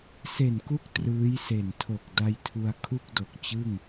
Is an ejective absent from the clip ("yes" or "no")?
yes